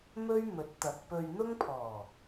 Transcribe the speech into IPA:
m ɵ˥ ɥ m ɵ˨˥ t̚ t̪ ɐ˨ k̚ p ɵ˧ ɥ n̪ ʊ˥ ŋ pʰ ɔː˨˩

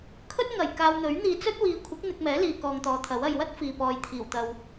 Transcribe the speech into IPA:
kʰ ɵ˥ t̚ ŋ ɐ˨˩ j k aː˧ w n̪ ɵ˨˥ ɥ n̪ iː˧ t͡s ɵ˥ t̚ w iː˨˧ kʷʰ ɪ˨˥ k̚ n̪ ɪ˧ k̚ m ɛː˨˥ l iː˨ k ɔː˧ ŋ t̪ ɔː˨ t̪ʰ ɐ˨˥ w ɐ˨ j w ɐ˥ t̚ f iː˨ p ɔː˨ j t̪ʰ iː˨˩ w t̪ ɐ˨ w

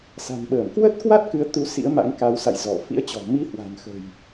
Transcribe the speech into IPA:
s a̤˨˩ n ɓ əː˧˩ m k w ə˦˥ t̚ k w a˦˥ t̚ k ɨ˨˦ ə̯ t̪ u˨˦ s ḭ˧˥ ə̯ m a̰˧˥ ŋ k a˨˦ w s a̰˧˨ j z ɔ˧˩ f ḭ˧˥ ə̯ t͡ɕ ɔ̤˨˩ m i˧ h w a̤˨˩ n x ə̤˨˩ j

